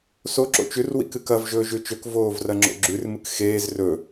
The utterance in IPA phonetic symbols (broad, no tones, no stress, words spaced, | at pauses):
so ǁo̰t͡ʃʉr wḭkɨkɐv ʒɵːʒʉt͡ʃɵk voːvrɐŋ͡ǁo̰ɡ͡ǁʉr mɨkxeːz rɵ